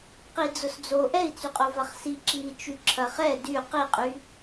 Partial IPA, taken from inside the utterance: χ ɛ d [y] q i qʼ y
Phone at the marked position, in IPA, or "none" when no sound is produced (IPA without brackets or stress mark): y